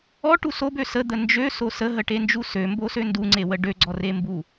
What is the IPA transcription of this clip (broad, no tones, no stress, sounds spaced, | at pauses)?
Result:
ɔ ʈ u s o b ø s ə d̪ ə n d͡ʒ ø s o s ə ɦ ə ʈ e n d͡ʒ u s ø m b o s ø n d u ŋ͡ǀ e w ə ɖ ø ɡ͡ǀ ɔ r e m b u